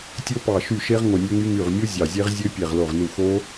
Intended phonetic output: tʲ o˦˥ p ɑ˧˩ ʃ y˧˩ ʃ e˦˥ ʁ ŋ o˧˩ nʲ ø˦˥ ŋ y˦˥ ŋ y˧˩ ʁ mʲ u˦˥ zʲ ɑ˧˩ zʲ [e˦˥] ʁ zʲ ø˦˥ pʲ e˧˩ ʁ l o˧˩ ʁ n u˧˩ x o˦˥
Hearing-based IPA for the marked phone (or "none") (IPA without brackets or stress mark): e˦˥